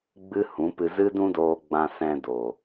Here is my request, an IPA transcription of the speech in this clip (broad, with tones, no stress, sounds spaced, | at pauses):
ɡ͡b ɨ˦ h ũ˨˦ p ɨ˧ z ɨ˦ d ũ˦ d oː˧ ɡ͡b ã˧ s ɛ̃˧ d o˨